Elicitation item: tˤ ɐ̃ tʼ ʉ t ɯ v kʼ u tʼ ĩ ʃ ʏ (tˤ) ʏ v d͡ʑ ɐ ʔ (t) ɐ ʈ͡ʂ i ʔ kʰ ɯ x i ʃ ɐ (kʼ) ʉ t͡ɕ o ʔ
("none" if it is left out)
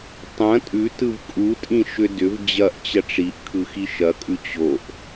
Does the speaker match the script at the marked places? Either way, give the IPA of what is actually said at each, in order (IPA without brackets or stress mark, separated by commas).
d, t͡ɕ, kʼ